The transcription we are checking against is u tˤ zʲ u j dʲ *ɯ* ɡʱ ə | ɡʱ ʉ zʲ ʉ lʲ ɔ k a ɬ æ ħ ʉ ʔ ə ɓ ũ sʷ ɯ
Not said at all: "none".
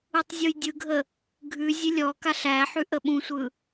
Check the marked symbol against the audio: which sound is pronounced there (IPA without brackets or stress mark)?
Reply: ɯ